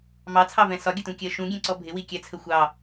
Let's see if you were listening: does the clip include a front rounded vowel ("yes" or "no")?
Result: no